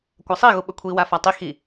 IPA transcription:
kʷ a sˤ i ɣ u ɓ ɵ kʷʰ i w a f a tˤ i x i

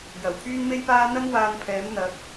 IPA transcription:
j ɐ˨˩ w pʰ yː˥ n m e˥ j p aː˥ n̪ ɐ˥ n w aː˧ n pʰ ɛː˨˥ m n̪ ɐ˨˥ k̚

